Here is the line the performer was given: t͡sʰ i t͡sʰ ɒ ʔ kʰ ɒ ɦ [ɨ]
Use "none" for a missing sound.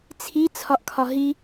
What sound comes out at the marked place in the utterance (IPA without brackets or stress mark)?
i